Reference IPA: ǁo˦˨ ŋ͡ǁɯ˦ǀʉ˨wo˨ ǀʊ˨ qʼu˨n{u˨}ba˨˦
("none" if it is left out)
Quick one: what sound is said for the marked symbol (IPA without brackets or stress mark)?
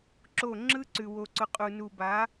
u˨